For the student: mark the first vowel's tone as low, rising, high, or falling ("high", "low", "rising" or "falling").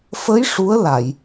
rising